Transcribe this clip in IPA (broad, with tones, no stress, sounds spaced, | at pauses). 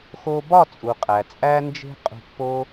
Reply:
x o˧ b ɒ˦˨ t͡sʼ u˨ qʼ æ˨ t͡sʼ æ˧ n d͡ʒ e̤˧ qʼ ṳ˧ pː o˦